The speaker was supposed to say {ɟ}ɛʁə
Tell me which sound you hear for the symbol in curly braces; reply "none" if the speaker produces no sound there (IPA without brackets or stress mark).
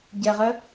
ɟ